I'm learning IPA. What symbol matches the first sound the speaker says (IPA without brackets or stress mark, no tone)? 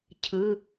cʰ